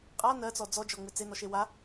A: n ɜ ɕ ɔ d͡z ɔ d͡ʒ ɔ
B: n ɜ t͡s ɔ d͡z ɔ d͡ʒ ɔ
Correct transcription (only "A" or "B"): B